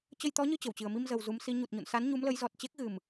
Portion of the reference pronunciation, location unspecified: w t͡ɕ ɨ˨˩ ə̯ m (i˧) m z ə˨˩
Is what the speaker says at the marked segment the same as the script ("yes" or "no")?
yes